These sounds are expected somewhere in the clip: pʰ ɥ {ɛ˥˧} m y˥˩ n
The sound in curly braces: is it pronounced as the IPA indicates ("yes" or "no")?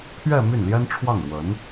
yes